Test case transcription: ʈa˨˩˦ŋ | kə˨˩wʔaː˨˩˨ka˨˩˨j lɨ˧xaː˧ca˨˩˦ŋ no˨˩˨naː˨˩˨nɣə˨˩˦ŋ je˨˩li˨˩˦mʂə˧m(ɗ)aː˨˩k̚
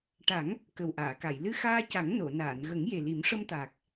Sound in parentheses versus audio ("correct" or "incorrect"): incorrect